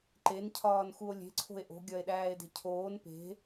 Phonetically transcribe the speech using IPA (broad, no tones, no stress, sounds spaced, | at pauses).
ǃ e n cʰ ɒː n x u o̯ lʲ e̤ ǀʰ o̤ e̯ ʔ o̤ ɡʲ ɒ e̯ ɗ æː e̯ d e̤ cʰ oː n p e̤